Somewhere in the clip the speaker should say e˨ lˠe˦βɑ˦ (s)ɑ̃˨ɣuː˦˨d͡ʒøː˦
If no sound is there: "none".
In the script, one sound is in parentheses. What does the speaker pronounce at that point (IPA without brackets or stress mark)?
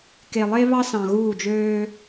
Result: s